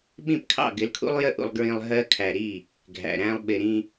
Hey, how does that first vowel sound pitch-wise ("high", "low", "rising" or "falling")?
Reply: falling